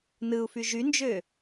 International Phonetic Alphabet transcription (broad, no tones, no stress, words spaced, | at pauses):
nɯu̯fy ʒynd͡ʒø